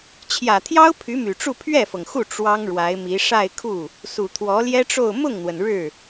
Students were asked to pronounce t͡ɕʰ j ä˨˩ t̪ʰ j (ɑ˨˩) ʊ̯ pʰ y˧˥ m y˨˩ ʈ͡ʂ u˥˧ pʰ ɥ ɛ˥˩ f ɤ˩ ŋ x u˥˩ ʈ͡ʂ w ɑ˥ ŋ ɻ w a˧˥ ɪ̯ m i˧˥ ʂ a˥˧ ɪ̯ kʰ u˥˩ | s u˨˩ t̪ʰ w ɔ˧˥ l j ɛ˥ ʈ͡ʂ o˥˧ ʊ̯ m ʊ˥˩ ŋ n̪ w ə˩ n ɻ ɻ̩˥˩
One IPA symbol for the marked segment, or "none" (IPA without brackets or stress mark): ɑ˥